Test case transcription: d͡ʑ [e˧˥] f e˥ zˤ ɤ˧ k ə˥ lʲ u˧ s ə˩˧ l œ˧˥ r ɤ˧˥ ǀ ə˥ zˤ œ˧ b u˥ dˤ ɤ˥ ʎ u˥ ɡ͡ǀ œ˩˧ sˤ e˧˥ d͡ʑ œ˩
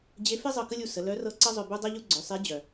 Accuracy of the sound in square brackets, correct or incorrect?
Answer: correct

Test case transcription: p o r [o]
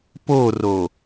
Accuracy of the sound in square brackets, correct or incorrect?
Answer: correct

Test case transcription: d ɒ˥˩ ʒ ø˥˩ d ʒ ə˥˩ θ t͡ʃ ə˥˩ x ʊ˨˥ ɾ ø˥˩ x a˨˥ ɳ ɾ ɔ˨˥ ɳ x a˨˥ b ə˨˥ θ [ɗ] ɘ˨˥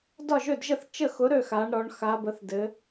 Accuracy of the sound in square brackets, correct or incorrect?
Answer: incorrect: d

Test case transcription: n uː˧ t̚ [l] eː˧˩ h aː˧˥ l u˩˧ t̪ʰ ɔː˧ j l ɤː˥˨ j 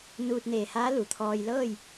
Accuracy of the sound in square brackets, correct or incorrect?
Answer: incorrect: n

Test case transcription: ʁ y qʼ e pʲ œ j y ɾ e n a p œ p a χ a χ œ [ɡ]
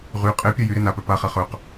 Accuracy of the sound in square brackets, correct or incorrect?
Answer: incorrect: q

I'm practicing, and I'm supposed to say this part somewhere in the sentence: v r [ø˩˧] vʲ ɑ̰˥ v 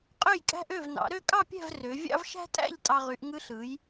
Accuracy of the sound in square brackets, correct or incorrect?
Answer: correct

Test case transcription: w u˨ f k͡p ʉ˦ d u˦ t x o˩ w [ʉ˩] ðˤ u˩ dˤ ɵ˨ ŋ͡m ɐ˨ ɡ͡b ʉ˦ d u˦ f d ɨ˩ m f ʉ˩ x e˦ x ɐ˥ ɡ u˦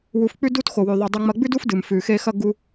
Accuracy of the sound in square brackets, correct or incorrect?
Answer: correct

